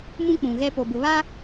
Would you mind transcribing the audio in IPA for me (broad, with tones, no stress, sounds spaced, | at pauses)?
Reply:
m ũ˦ k͡p ũ˨ ɣ ɛ˦ p o˨ b ʊ˨ β a˦